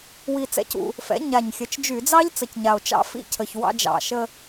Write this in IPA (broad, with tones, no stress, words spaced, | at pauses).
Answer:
wi˧t͡sɛ̰˦˥cṵ˧ | fɛ̰˩˥ɲa˨˩ɲ xʲə˩˥t͡ʃd͡ʒy˧˩˧d͡zɑ˦˥ʎ t͡sə˨˩cɲa˨˩o̯ t͡ʃɑ̰˦˥fḭ˦˥cʰə˨˩ç wɑ̰˧d͡ʒɑ̰˨˩ʃə˧